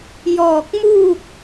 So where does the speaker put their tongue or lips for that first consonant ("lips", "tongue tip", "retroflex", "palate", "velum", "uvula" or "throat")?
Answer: palate